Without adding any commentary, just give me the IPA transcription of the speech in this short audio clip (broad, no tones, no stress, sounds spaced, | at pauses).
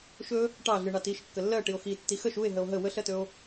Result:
ʃ ɵ | ʈ ɑ ɮ ɨ ɳ ɑ t i ʃ kː ə lː ɜ ʈ i o̯ x i tː i x ə ʃ u e̯ ɦ ə o̯ ɦ ə w ə ɬ ɜ t ɵ o̯